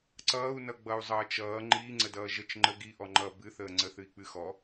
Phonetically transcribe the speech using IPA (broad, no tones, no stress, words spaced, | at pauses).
ǀʌːu̯nʌ ɡ͡bʌu̯zˤʌːt͡ʃʌː ŋ͡ǃiːŋ͡ǀədʌː ʒət͡ʃ ŋ͡ǃə ɡiʔɔŋ͡ǃʌː bɨθəː ŋ͡ǀəθɨi̯k͡pɨxɔ